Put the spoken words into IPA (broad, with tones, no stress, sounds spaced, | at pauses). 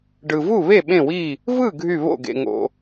ɖ ɯ˨ v u˥˨ β e˥˨ ɓ ẽ˥˨ w i˥˨ | v ɯ˥˨ ɡʱ y˥˨ β o̰˥˨ ɡ ḛ˨ ŋ o̰˨